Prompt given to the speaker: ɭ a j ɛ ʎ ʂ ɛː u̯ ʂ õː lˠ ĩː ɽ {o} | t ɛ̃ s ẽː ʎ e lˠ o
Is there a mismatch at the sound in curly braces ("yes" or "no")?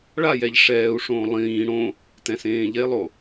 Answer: yes